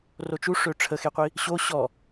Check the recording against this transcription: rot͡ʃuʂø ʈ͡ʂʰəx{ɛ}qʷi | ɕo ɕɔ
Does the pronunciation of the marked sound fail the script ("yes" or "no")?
yes